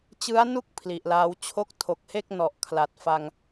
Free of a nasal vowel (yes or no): yes